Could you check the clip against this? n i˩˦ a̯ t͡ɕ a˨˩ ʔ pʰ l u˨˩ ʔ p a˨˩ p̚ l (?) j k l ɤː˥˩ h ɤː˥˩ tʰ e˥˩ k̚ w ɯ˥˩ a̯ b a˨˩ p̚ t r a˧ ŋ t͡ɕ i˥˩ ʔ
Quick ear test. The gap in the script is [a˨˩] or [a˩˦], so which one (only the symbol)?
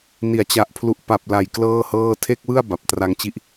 a˨˩